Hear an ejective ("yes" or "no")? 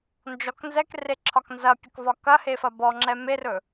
no